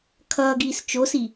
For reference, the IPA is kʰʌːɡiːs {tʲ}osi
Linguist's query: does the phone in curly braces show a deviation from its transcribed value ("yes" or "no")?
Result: yes